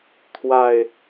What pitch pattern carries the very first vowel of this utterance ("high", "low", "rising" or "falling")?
low